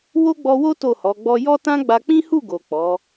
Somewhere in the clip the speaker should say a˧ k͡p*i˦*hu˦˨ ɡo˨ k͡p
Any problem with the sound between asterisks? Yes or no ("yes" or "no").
yes